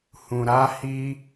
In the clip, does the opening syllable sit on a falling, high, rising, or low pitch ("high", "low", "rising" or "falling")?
low